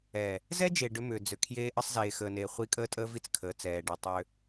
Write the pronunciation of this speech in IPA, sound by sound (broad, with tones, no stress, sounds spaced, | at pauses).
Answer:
ɛː˨ | z ɛ˦ d͡ʒ e˨ ɖ ʏ˦ m ʏː˨ d͡z ʏ˨ kʰ j eː˦ ʔ ə˦ sˤ z eː˨ x əː˨ n eː˨ χʷ i˦ kʼ əː˦ tʼ əː˦ v i˦ t͡s kʰ əː˨ t͡s ɛː˨ ɖ i˨ tˤ ʏː˦